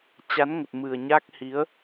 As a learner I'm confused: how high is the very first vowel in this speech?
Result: low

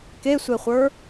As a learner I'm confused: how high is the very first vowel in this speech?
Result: mid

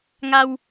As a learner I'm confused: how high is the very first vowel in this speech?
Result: low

